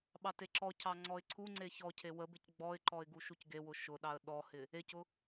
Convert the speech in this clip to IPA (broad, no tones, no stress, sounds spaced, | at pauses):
ɓ ɑ t e ǁ ɔ cʰ ɑ ŋ͡ǀ ɔ ɪ̯ ǀʰ u ŋ͡ǀ e ç ɔ cʰ e w ə b ɪ c ɡ͡b ɔ ɪ̯ ǃ ɔ ɪ̯ ɡ u ʃ u c ɡ e w ʊ ʃ ʊ ɗ ɑ ə̯ ɗ ɔ h ɪ | e c ʊ